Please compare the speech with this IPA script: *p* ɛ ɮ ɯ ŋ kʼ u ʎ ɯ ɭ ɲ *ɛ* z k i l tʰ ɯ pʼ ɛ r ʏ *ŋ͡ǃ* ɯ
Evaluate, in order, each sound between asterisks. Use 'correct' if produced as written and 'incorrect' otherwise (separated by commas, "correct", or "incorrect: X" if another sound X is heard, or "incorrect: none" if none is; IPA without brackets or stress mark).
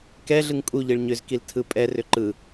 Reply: incorrect: k, incorrect: ʏ, incorrect: ǃ